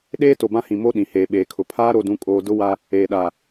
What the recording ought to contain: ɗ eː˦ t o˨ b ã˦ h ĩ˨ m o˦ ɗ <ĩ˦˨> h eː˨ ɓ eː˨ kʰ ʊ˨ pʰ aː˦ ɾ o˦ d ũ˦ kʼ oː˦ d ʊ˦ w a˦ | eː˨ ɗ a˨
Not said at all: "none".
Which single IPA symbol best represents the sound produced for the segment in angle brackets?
ĩ˨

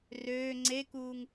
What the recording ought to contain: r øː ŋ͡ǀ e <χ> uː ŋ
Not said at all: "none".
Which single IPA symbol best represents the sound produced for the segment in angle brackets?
k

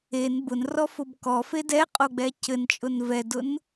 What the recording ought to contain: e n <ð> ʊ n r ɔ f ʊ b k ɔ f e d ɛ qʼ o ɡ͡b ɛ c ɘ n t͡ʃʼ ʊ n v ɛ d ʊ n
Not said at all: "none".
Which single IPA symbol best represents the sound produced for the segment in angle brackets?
b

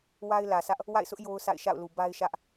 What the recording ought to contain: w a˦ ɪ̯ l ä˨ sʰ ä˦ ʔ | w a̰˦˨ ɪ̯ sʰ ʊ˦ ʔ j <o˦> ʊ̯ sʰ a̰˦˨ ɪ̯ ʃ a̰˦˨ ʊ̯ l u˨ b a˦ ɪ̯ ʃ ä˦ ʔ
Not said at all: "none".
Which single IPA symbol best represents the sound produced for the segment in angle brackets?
o˦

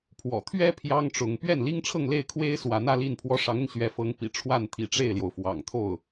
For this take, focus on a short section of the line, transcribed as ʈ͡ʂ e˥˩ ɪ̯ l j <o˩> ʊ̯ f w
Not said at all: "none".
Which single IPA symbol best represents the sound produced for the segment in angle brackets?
o˩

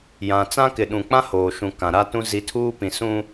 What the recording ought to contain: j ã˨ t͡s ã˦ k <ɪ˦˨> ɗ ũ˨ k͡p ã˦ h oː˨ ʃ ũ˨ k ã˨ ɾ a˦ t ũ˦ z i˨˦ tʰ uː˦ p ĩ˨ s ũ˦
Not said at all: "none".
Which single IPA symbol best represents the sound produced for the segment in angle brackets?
ɪ˨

